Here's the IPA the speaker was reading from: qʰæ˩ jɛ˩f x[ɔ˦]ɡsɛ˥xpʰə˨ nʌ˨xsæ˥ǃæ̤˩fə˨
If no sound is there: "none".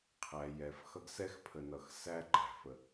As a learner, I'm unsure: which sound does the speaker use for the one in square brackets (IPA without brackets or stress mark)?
ʌ˦